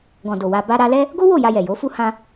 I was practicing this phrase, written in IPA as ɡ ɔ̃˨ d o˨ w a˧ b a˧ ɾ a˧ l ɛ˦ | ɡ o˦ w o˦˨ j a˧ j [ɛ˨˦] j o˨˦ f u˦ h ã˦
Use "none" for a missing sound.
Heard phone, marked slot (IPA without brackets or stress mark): ɛ˨